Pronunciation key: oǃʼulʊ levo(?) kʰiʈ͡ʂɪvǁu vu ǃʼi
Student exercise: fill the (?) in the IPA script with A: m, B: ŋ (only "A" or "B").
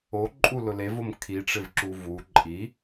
A